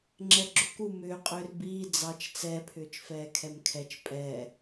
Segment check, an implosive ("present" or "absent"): absent